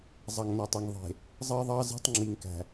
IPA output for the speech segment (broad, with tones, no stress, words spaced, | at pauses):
zˤɑ˨ŋnɐ˨tˤɐ˨ŋ ðˤe̤˨ | zˤɜ˦ðˤɑ˦ze̤˦tˤ ŋ͡ǁi˨ŋkæ̤˨